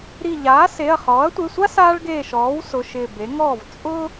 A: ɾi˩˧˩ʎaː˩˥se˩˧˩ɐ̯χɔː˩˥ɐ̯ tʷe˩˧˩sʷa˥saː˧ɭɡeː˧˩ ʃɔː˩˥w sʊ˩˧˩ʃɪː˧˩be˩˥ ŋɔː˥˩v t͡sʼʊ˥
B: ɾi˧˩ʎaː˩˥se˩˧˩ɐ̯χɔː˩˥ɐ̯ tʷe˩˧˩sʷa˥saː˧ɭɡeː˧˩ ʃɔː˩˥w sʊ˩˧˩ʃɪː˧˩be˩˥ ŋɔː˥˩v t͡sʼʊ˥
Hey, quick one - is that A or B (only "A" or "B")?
B